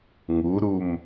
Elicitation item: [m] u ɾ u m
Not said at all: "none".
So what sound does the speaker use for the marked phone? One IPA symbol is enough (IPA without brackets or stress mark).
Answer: ŋ